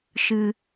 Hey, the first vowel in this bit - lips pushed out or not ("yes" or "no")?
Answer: no